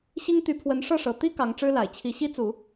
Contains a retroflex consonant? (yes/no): yes